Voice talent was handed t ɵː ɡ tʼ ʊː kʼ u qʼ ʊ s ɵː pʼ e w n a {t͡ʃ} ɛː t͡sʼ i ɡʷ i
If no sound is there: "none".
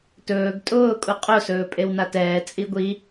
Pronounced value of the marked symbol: t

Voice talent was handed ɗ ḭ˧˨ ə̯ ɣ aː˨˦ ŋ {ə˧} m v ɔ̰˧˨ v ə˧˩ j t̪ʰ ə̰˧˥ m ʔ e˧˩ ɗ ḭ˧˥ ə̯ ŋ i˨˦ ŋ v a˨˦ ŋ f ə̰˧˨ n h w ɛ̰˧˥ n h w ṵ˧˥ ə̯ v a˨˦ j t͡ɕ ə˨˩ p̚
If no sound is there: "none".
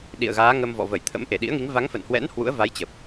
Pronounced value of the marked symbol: ə˧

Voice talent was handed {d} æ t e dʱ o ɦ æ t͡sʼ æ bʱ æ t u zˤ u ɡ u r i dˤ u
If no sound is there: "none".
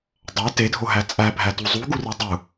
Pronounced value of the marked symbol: dˤ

